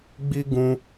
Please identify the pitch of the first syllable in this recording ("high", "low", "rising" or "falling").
high